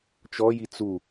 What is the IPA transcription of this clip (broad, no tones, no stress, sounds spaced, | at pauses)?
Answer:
t͡ʃ ɔ j i t͡s u